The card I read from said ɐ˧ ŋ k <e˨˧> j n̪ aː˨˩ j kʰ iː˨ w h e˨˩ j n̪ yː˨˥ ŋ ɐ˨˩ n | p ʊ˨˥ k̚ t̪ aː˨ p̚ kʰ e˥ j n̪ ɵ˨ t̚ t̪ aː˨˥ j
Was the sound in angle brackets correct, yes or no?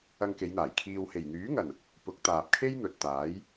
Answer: yes